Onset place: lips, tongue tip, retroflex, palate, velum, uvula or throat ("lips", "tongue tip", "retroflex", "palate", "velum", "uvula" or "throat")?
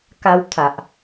velum